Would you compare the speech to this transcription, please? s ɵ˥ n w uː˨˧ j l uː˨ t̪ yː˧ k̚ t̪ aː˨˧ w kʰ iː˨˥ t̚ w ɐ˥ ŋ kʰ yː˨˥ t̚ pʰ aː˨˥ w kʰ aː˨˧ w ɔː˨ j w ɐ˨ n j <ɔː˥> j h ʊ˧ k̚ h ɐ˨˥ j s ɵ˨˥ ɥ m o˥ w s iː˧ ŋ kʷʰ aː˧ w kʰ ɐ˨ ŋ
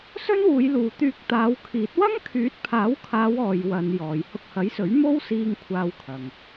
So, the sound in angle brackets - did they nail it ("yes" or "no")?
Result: no